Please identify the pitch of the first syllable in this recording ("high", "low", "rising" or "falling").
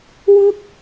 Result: high